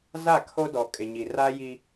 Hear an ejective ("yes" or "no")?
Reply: yes